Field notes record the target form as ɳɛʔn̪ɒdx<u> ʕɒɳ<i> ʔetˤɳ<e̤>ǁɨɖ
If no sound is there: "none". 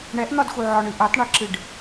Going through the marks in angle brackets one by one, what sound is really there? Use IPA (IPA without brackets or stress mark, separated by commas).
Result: u, ɨ, e